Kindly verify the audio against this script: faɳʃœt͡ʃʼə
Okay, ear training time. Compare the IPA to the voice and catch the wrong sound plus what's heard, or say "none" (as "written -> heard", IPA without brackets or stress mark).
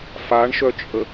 none